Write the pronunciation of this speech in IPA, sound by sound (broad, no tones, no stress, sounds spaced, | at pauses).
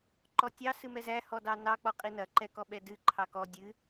ǃ ɔ tʲ ɑ s ɨ m ɛ z æ h ɔ d ɑ n ɑ k͡p ɔ qʼ i n ɐ ǃ ɛ k ɔ ɓ ɛ d ɨ ǃʰ ɑ k ɔ dʲ ɨ